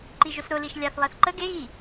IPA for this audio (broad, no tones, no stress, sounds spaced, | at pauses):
ǃ i ʒ ʊ s ɾ ʊ l i ʃ lʲ a θ lˠ ɛ θ ǃ ə ɡ e ɣ i